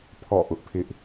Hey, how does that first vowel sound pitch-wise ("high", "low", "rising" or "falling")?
falling